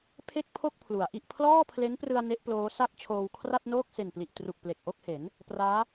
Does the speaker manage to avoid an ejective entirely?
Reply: yes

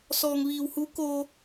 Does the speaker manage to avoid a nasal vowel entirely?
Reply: yes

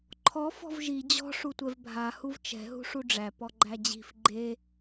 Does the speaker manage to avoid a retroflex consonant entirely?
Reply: no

